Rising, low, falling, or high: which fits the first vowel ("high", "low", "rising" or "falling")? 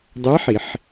rising